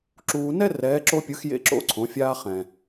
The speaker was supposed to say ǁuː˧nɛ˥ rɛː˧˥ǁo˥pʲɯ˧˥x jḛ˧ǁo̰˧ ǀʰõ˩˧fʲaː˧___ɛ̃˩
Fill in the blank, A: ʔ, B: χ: B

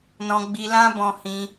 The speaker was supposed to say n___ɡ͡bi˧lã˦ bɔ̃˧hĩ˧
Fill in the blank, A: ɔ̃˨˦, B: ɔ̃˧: B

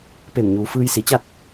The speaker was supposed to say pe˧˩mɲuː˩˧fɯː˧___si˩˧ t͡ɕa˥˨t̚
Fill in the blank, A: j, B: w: A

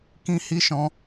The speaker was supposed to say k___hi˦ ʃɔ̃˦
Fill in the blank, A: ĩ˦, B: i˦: A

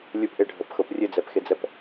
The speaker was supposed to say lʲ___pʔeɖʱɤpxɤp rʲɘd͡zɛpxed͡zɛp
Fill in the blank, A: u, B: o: A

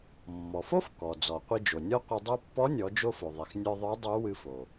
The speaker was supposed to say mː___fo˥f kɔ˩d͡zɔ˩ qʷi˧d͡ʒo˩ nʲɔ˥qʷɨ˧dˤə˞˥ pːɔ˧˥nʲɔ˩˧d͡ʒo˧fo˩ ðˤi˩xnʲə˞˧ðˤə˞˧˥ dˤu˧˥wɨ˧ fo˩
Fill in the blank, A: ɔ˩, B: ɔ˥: A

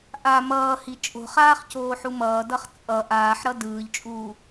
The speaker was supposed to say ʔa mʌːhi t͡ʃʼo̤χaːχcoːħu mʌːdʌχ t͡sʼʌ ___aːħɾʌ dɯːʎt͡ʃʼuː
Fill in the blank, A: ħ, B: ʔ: B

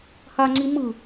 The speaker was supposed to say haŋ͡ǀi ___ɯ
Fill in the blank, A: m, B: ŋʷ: A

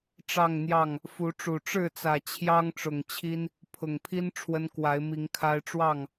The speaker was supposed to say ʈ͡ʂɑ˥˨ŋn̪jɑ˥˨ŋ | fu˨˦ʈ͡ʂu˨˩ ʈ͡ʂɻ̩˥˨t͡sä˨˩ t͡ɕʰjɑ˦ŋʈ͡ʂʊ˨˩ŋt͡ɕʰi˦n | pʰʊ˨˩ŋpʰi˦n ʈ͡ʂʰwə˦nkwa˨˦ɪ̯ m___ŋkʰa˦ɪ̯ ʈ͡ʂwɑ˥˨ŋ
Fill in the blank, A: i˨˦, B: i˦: A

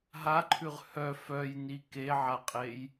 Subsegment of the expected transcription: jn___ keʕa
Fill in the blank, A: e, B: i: B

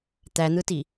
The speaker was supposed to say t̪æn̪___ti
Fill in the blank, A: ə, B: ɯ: B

